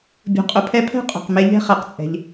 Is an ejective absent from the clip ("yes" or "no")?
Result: no